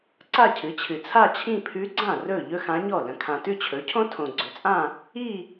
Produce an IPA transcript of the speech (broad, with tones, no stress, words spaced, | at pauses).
ǀa˥˧cʰɨ˩˥t͡ɕʰɨ˨ t͡sʰa˥˧t͡ɕʰĩ˥˧pʰʉ˧˥ɡ͡ǀã˥˩ rɵ˥˩ ʎɵ˥xã˧˥ɲɔ˥˩ lə̃˨ kʰã˨tʉ˥˧t͡ɕʰɵ˩˥cʰõ˥ tʰõ˨ɡ͡ǀɵ˩˥t͡sʼã˥˧ | i˥˧